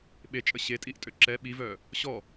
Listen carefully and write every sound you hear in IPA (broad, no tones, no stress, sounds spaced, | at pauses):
ɓ e t͡ʃʼ ə ɕ e tʼ i ʔ tʼ ø ǁ ɛ ɓ i v œ | ɕ ɔ